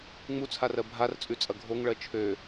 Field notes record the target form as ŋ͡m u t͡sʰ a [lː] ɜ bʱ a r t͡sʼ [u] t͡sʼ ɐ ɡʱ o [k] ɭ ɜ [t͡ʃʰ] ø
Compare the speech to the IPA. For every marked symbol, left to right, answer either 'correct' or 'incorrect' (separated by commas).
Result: incorrect, incorrect, incorrect, correct